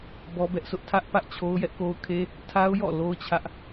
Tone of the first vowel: high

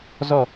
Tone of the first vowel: falling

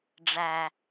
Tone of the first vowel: low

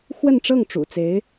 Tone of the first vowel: falling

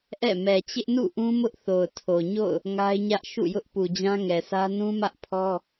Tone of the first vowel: falling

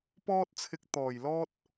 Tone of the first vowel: high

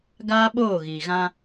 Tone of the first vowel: high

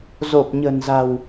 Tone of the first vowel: low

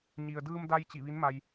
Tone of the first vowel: low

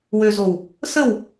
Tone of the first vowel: low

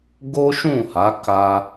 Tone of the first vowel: high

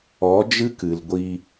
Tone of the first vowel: rising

